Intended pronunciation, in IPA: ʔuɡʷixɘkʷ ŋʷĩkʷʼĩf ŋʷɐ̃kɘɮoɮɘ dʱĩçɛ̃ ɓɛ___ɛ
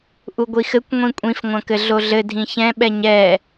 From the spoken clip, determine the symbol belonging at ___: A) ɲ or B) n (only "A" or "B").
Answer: A